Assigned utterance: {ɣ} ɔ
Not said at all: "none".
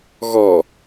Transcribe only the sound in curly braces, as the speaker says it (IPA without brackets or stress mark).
ɣ